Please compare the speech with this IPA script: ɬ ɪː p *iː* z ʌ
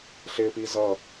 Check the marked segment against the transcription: correct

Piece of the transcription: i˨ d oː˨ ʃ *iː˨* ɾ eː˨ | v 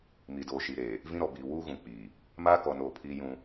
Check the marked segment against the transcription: incorrect: i˨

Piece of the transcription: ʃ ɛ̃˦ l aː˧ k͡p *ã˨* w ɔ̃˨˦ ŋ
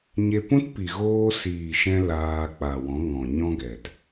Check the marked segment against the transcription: incorrect: a˨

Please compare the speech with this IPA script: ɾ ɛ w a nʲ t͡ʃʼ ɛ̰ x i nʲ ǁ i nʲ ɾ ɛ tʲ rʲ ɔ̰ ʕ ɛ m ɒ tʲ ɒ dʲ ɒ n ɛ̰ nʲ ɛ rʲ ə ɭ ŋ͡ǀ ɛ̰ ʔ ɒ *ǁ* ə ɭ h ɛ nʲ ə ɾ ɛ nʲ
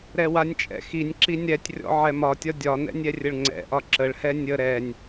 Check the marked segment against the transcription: correct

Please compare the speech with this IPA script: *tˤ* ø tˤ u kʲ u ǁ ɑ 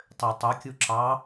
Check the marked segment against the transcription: correct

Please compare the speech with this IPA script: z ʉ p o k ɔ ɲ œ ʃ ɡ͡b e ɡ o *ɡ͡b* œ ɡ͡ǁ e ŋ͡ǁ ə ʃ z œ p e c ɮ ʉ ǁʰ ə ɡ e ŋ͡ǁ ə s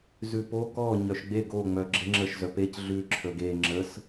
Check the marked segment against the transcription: incorrect: ŋ͡m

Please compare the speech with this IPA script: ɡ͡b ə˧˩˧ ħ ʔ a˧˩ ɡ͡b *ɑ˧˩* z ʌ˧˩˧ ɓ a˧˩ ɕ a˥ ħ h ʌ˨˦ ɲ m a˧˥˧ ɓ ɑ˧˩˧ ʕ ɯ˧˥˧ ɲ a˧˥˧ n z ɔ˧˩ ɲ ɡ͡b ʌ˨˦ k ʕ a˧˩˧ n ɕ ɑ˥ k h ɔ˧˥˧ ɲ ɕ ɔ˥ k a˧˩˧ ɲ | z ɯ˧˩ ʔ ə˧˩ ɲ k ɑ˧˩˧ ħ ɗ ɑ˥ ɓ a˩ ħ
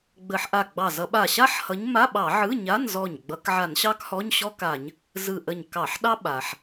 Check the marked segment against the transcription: correct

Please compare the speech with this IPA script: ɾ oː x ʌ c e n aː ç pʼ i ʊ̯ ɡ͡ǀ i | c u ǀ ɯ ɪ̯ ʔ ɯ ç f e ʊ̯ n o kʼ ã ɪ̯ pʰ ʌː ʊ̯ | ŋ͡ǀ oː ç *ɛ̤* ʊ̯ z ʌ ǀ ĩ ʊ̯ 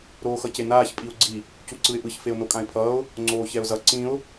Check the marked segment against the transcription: incorrect: ɛ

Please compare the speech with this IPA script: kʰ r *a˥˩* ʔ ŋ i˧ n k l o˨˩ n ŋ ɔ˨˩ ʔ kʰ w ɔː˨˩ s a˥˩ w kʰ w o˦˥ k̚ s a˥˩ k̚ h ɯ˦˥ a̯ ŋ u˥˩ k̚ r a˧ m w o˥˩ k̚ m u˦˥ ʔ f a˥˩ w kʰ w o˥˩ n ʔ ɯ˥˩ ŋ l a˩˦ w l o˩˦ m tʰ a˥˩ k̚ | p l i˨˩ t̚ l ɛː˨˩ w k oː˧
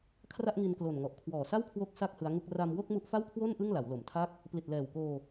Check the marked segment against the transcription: correct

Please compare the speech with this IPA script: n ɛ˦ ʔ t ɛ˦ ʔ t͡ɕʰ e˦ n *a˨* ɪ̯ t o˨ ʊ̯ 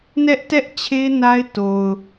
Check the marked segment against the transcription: incorrect: a˦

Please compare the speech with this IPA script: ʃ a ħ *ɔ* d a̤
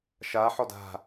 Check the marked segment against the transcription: correct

